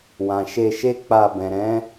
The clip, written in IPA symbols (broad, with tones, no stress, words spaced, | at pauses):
wã˨ ʃe˧ʃe˦k͡pa˧ bɛ̃˨ɾɛ̃˨˦